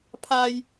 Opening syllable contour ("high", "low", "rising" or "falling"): high